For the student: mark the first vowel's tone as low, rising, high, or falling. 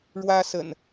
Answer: high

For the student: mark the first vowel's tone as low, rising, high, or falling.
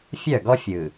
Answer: falling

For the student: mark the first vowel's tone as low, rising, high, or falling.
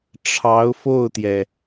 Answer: rising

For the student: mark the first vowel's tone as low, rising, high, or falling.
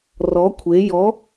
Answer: rising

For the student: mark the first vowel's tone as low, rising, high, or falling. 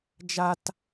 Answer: high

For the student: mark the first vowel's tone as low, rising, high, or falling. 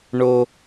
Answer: high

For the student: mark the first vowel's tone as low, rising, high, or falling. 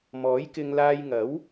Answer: rising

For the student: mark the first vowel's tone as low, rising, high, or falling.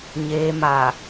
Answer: low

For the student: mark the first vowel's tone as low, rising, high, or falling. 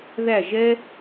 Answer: falling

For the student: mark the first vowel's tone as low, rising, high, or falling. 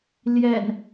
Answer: low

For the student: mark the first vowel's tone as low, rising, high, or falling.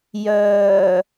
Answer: low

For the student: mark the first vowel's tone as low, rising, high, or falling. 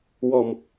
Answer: low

